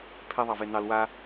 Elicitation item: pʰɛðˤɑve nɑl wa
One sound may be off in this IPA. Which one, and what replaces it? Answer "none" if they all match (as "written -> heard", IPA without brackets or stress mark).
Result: none